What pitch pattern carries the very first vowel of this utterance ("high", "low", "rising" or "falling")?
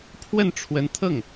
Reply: falling